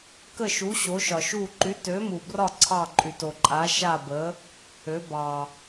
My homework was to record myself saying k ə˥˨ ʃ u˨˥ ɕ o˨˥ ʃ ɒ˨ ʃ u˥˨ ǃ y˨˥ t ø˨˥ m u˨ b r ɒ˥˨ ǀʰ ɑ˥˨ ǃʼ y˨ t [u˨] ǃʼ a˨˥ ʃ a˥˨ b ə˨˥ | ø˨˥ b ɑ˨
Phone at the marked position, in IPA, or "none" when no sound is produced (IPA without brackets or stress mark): o˨